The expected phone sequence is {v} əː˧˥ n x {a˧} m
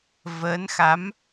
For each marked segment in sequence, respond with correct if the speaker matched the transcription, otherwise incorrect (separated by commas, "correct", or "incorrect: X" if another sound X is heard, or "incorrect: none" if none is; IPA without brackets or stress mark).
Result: correct, incorrect: a˧˥